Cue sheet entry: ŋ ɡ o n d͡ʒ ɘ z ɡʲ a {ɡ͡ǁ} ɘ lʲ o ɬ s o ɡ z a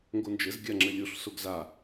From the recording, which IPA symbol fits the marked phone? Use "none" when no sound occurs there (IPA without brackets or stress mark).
ŋ͡ǁ